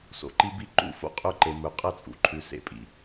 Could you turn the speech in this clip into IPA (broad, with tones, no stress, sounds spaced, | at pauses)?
s o̰˨ ǃ i˦ b i˦ ǃ ṵ˦˨ f o̰˦ qʼ ɵ˦˨ ǃ e˨ m ɵ˨ qʼ ɐ˦˨ t͡sʼ ṵ˨ ǃʰ ʉ˨ s ḛ˦˨ pʼ ḭ˨